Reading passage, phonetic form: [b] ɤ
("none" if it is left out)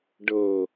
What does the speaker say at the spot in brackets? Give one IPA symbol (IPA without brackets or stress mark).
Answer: ɖ